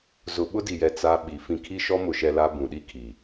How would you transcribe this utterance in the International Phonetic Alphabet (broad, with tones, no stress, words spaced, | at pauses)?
zʊ˨ɓʊ˦di˨jɛ˨ t͡sa˦ɓi˨ fĩ˨kʰi˦ʃɔ˦mʊ˨ ʃɛ˦la˦ bũ˨ɗi˦kʰi˨